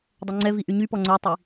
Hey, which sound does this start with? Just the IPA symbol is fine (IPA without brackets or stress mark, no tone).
dˤ